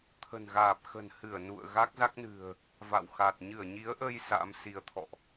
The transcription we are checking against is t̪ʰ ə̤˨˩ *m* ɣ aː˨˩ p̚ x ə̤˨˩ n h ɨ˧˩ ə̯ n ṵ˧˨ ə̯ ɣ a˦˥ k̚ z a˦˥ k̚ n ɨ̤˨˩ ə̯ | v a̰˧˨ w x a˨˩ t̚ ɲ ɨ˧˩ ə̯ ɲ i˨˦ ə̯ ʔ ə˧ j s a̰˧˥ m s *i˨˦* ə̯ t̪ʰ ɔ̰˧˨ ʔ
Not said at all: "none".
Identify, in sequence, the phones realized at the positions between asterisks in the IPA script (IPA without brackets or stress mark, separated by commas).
n, i˨˦